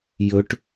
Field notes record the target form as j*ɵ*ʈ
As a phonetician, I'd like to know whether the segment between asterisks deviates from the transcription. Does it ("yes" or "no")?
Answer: no